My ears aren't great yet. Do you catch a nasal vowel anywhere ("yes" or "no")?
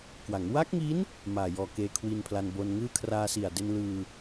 no